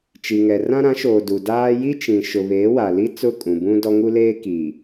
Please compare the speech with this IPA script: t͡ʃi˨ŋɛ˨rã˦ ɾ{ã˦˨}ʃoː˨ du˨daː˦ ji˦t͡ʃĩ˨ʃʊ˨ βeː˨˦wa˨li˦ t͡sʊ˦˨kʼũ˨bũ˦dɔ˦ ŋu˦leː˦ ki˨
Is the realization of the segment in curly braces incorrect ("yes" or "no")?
yes